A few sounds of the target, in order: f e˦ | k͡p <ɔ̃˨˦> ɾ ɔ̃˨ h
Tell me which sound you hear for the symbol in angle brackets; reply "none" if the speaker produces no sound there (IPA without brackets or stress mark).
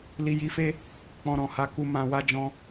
ɔ̃˧